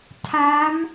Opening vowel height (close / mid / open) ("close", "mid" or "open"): open